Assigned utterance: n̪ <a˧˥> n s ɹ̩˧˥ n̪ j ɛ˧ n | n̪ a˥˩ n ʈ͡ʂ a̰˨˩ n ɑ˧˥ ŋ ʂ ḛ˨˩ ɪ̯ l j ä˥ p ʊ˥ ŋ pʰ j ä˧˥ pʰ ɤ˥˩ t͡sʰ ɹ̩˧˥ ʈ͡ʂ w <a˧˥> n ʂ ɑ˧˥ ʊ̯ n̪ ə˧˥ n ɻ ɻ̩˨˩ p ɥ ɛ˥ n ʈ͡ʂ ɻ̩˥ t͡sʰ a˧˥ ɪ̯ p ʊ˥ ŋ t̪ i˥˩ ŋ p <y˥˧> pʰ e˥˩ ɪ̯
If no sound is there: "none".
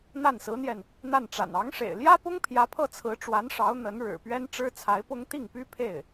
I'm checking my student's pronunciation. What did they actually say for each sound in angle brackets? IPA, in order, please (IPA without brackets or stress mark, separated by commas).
a˥˩, a˧˥, y˥